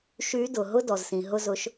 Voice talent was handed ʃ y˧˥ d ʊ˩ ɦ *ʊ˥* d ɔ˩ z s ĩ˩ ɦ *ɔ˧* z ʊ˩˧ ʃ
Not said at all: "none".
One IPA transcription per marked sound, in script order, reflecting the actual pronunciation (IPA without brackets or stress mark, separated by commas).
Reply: ʊ˥, ʊ˧